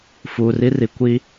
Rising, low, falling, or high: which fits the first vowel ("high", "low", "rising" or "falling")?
low